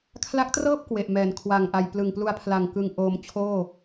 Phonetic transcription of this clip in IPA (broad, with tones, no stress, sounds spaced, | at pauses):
kʰ l a˦˥ k̚ t r ɤː˥˩ p̚ k w e˨˩ ʔ m ɛː˩˦ n kʰ w a˨˩ ŋ ʔ a˨˩ j p l ɯ˨˩ ŋ p l u˧ a̯ pʰ l a˨˩ ŋ k ɯ˧ ŋ ʔ oː˧ m t͡ɕʰ oː˥˩